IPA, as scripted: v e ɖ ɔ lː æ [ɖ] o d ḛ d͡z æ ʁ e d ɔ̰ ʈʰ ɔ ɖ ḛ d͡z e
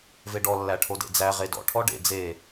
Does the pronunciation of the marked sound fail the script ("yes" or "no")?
yes